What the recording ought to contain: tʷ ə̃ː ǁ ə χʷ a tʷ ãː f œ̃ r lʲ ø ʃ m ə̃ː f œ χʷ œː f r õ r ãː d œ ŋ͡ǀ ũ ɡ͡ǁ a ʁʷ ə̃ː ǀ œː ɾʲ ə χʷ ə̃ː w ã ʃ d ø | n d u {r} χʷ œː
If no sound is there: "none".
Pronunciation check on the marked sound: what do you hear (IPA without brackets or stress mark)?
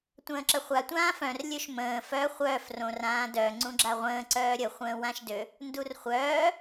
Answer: r